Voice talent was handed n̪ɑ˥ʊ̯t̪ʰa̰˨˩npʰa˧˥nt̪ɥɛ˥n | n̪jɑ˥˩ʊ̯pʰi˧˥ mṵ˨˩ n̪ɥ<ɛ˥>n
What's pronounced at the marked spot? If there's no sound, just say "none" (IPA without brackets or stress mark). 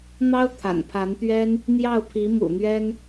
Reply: ɛ˥